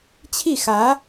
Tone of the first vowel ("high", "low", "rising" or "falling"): falling